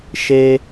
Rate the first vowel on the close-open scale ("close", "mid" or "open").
mid